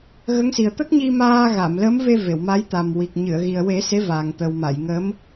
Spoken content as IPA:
ɣ ə˧˥ ŋ s i˨˩ ə̯ t̪ ə˦˥ k̚ ɲ i˧ m aː˧ ɣ a˨˩˨ m l ə˧˥ m v e˧ v e˨˩˨ w m a˧˥ j t̪ a˨˩ m w i˨˩ k̚ ɲ ɨ˨˩˨ ə̯ ɣ i˨˩ ə̯ w e˨˩˦ s e˧˥ v a˨˩ ŋ t̪ ə˨˩ w m a˨˩˨ j ŋ ə˧˥ m

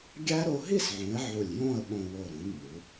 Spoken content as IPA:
ɡʲ æ˥ ɾ o˧ ɦ i˥˧ s ʕ ũ˩˧ ɪ̯ ʕ u˧˩ lʲ j õ˥˧ ə̯ ɓ õ˧ w o˧˩ ɾ ũ˩˧ nː u˩˧

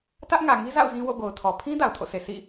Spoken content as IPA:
t ä˦ ʔ ŋ ä˨ ŋ i˦ z a̰˦˨ ʊ̯ z ĩ˦ w o̰˦˨ ɡ o˨ ʊ̯ tʰ ɔ˨ pʰ ĩ˦ d a˨ ʊ̯ tʰ o̰˦˨ sʰ e˨ sʰ ḭ˦˨

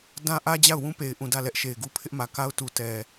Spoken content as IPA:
d ã˦ ʔ ä˦ d͡ʑ a˦˨ ʊ̯ w ũ˦ p e˨ ɪ̯ ʔ ũ˨ d ä˦˨ l ɛ˦ ʔ ʃ e˨ ɪ̯ ɡ u˦ pʰ ɪ˦ ʔ m ä˨ k a˦ ʊ̯ t u˨ t ɛ˨

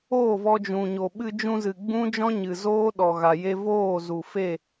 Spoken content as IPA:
oː˦˨ v ɔ˧ d͡ʒ ũ˨ ɲ o˨ ɓ ɨ˧ d͡ʒ ũ˧ z ɨ˨ ɡ͡b ũ˦ d͡ʒ ɔ̃˦ ɲ ɨ˨ z oː˦ ɗ ɔ˨ ɣ a˨ j e˧ v oː˦˨ z u˨ f e˦˨

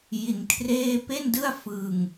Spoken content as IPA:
j i˧ n kʰ r eː˥˩ p e˥˩ n d ɯ˥˩ a̯ f ɯ˧ ŋ

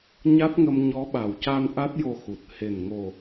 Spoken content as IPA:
ɲ a˦˥ t̚ ŋ ə˧ m ɲ ɔ˧˥ ɓ a˨˩ w c a˧ n ʔ a˦˥ t̚ j o˧ x u˨˩ t̚ h e˨˩ n ŋ o˨˩

